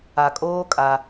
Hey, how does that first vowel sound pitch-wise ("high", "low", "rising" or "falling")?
low